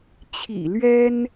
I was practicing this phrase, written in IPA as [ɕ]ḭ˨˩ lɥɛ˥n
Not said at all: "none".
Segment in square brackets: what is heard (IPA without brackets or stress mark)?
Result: t͡ɕʰ